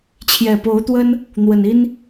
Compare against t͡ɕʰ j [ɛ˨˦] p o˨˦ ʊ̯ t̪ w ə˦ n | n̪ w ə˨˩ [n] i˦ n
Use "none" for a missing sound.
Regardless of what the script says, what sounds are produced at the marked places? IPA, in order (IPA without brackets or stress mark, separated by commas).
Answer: ɛ˨˩, n